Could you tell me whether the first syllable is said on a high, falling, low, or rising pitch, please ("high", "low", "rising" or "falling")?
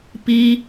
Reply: high